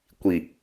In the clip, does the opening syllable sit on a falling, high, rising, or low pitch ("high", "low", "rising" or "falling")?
low